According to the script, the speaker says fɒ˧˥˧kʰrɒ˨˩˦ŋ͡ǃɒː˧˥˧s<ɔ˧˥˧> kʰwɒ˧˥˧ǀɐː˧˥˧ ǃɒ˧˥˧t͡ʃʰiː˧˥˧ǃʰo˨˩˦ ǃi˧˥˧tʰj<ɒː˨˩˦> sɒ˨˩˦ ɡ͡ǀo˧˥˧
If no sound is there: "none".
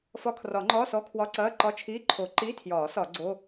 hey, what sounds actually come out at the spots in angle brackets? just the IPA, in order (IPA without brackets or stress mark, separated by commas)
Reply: ɔ˧˥˧, ɒː˨˩˦